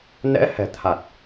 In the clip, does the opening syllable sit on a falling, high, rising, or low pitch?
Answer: rising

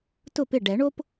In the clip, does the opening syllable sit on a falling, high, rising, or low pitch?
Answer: falling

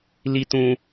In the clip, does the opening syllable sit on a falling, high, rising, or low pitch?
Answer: high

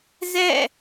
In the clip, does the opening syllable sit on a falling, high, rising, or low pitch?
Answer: falling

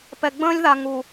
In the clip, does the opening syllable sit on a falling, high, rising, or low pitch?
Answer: low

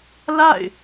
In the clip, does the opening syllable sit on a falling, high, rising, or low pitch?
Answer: falling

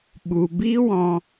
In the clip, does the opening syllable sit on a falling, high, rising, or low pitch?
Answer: low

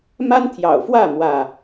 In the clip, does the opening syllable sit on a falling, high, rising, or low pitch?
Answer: high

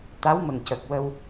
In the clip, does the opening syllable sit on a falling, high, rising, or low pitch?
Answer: rising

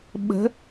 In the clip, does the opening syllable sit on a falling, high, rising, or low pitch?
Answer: rising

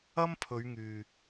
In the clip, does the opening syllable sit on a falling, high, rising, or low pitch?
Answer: high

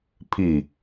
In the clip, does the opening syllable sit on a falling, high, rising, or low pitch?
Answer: falling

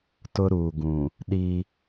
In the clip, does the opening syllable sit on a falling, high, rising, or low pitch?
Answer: high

